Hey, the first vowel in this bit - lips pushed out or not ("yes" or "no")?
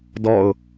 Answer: yes